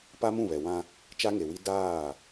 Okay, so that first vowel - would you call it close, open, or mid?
open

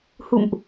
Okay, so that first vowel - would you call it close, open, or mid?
close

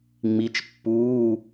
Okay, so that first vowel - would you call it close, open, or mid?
close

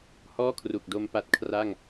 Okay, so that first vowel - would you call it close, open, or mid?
mid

